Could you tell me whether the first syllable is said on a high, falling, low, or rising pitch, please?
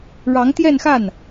rising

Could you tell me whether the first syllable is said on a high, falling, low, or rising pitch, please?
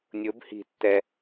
rising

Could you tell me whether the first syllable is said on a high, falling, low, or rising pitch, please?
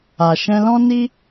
low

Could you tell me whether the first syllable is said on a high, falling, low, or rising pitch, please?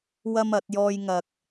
high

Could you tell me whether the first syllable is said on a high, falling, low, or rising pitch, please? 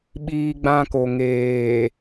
high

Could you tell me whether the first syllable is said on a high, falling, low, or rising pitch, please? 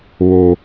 low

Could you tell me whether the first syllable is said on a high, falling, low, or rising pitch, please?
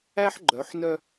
high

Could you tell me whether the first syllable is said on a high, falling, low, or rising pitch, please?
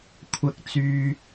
high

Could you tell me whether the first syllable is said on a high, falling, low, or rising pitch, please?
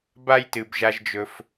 high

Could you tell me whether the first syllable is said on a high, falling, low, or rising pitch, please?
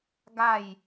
falling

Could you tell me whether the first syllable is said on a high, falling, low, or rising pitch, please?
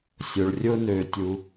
low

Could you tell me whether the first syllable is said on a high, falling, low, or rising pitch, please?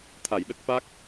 low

